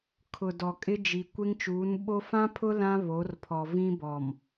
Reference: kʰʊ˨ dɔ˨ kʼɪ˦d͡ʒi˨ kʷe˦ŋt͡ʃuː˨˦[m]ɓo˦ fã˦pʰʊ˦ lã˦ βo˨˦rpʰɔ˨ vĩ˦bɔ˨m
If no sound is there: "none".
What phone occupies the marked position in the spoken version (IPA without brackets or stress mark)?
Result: n